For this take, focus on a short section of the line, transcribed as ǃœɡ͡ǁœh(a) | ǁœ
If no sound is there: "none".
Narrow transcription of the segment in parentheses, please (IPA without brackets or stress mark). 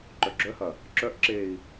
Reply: ɐ